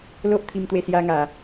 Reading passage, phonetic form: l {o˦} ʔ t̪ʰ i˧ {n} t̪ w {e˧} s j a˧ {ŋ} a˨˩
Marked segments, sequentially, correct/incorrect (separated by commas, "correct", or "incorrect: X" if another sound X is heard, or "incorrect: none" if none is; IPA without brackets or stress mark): correct, incorrect: m, correct, correct